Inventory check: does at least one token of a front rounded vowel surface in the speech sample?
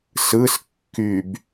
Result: yes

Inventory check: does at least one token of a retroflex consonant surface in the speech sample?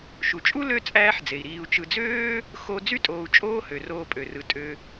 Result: no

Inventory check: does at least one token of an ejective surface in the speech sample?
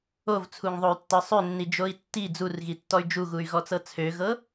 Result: no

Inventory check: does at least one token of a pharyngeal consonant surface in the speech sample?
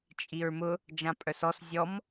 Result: no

